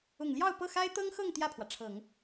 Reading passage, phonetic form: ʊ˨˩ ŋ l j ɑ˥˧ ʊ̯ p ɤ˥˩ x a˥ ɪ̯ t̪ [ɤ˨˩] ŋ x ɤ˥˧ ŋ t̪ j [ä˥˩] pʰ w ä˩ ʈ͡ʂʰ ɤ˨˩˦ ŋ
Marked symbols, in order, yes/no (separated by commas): no, yes